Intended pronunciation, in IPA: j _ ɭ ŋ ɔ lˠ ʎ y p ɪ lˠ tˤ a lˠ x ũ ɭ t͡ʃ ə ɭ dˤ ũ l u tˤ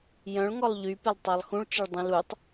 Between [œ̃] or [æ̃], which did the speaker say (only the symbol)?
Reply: œ̃